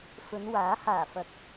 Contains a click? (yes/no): no